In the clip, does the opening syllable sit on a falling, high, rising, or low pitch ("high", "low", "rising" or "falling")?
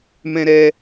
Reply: high